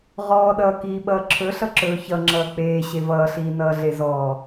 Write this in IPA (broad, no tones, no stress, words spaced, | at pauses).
ʁɔːɗʌːkiːɓʌː ǁʰɵɬʌ ǁɵːçʌŋ͡ǁʌː k͡peː ɕevʌːɬiː nʌːɮezɔː